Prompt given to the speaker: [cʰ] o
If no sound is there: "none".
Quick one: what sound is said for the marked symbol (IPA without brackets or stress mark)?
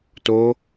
t